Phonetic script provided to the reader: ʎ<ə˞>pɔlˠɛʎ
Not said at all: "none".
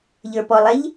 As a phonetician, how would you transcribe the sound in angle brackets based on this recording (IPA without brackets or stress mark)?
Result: ə˞